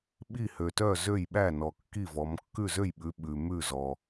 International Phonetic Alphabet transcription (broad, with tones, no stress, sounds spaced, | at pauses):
ɓ i˥˩ h ø˨ t œ˥˩ z ø˥˩ j ɓ æ˥˩ n ɔ˨ kː i˥˩ v ɔ˨˦ m kː ʉ˥˩ z ø˥˩ j ɓ ʉ˨˦ ɓ ʉ˨ m ʉ˥˩ z ɔ˨